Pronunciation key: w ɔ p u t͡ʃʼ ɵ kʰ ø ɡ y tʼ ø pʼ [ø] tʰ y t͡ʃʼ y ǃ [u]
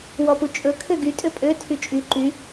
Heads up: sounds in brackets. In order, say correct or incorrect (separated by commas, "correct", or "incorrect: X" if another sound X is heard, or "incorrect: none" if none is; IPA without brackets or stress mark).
correct, incorrect: y